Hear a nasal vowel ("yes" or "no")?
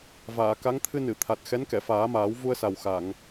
no